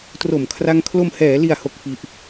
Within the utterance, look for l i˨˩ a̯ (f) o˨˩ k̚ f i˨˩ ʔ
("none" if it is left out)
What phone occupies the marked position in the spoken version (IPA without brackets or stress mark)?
h